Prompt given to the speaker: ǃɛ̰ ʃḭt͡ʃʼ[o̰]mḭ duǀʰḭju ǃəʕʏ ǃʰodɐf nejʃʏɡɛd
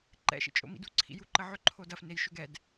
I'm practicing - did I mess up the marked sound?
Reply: no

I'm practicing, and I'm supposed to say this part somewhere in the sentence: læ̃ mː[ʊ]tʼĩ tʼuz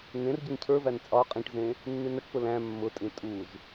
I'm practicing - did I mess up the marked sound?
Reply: no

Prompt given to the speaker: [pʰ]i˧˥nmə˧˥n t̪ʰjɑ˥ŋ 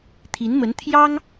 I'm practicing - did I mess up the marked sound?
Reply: yes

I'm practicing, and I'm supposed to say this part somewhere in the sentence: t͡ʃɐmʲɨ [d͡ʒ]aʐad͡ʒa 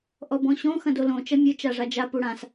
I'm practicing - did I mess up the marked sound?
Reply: yes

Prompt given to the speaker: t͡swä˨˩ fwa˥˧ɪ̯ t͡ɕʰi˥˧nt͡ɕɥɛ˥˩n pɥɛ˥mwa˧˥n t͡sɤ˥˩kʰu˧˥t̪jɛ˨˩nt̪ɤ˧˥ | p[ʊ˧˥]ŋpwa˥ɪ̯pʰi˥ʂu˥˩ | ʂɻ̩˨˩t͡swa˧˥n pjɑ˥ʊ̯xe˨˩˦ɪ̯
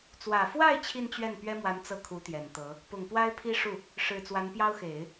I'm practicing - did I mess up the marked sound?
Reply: yes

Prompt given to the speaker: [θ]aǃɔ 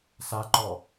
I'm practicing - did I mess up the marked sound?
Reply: yes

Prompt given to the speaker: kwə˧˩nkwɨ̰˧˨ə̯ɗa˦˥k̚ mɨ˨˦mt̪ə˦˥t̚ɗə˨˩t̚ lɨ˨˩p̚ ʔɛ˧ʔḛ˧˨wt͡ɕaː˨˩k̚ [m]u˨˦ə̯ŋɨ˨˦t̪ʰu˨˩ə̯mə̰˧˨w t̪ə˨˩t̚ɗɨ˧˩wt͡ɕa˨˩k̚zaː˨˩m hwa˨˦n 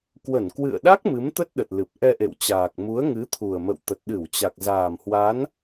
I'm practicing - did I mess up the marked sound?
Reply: no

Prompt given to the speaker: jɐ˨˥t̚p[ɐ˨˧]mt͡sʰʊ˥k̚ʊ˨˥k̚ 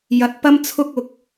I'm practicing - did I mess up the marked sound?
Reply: yes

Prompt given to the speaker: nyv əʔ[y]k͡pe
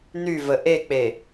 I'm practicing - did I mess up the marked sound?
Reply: yes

